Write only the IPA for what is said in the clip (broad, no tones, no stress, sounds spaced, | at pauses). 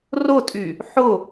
r ʊ tʼ y | ħ ʊ